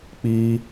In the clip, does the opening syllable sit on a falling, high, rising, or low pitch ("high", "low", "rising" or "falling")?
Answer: high